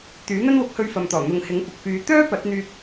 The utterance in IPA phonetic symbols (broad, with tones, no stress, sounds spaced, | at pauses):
t̪ yː˨˥ n̪ ɐ˥ n w ʊ˨˥ k̚ h ɵ˧ ɥ f ɐ˨ m t̪ ɔː˨˩ n̪ ʊ˨ ŋ h ɪ˨˥ ŋ kʷ ɐ˨ k̚ f yː˨˧ t̪ œː˥ p ɐ˨˥ t̚ n̪ yː˧ k̚